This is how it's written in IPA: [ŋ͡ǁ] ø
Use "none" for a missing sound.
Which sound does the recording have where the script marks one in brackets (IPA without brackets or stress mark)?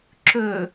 ǁ